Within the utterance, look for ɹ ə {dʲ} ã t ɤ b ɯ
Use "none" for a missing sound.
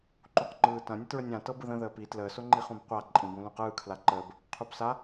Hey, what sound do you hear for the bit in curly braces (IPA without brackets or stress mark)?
nʲ